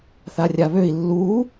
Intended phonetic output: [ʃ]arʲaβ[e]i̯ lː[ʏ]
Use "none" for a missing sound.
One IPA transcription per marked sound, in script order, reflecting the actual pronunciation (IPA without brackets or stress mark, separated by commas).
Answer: θ, ø, u